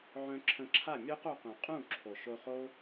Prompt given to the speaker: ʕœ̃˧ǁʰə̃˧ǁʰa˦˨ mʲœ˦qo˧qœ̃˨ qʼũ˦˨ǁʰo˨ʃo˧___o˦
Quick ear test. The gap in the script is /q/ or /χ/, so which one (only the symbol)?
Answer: χ